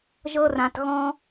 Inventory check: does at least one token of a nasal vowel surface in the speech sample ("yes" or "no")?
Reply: yes